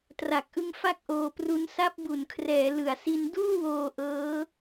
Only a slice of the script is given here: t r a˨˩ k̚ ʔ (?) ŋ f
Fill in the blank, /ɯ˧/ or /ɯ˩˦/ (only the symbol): ɯ˧